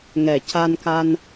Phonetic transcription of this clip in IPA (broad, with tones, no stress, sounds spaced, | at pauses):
ŋ ɛ˨˩ c a˧ n k a˧ n